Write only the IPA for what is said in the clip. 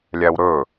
lʲæwɾɵ

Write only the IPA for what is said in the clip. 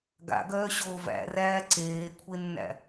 ɡa̰ɡœːɕoː væ̰ræː ǀeːkʷʰenːæ̰

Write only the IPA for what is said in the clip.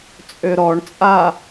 t͡sʼøɾɔɳt͡sʼa

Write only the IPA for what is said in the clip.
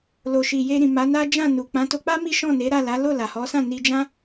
lo˨ʃi˨ je˧ɾĩ˨ ma˨˦na˦ d͡ʒã˦˨nu˨ k͡pã˨˦to˧k͡pa˦ mi˦ ʃɔ̃˦˨ne˨˦ ɾa˦˨la˨˦ lo˦˨la˨hɔ˨˦sã˦˨ ni˧d͡ʒã˦

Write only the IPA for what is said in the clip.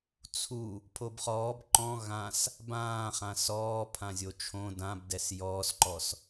t͡sʰu | pʰobχɔːb ǃɔ̃ ɣãs | bãːχã sɔː pʰãzʲot͡ʃʰõ dãbdɛs jɔːsǃɔs

